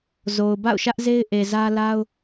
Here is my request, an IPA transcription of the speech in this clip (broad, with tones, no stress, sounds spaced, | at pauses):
z o˨ ʊ̯ b a̰˦˨ ʊ̯ ʃ ä˦ ʔ z e˦ ɪ̯ ʔ e˨ z ä˦ l a˦ ʊ̯